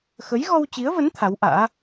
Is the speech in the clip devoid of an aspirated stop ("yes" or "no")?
no